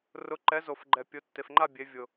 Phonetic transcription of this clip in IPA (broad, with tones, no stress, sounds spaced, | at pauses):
r ʊ˩˧ ǃ ɛ˩˧ z o˩ f ɡ͡ǃ ɛ˩ pʲ ʊ˩˧ tː e˩ f ŋ͡ǃ a˥˧ bʲ e˩˧ vʲ ʊ˩